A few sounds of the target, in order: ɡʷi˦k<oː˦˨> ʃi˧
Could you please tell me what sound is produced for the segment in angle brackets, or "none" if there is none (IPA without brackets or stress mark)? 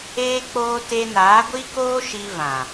oː˦